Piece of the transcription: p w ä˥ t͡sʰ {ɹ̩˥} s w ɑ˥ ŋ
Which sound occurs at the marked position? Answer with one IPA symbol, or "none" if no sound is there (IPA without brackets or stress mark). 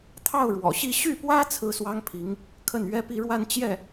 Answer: ɹ̩˥˩